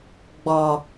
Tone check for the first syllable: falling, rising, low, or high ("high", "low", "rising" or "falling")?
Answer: low